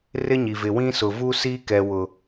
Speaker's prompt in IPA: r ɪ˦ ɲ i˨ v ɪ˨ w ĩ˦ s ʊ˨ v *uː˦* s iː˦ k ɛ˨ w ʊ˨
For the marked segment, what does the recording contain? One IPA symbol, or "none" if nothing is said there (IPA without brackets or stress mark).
uː˦